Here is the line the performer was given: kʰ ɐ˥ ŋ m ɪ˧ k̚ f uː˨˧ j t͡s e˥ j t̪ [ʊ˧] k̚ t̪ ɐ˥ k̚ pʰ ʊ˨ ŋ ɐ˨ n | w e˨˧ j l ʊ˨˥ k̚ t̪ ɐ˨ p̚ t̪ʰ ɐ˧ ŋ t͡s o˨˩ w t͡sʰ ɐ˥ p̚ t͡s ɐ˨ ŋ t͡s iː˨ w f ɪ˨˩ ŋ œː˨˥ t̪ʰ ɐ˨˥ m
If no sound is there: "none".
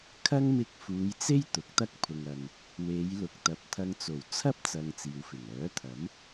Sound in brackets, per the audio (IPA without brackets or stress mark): ʊ˨˥